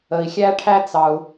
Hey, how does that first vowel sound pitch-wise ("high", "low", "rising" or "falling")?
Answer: low